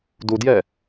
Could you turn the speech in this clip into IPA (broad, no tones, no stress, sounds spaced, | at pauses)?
d u d j ɛ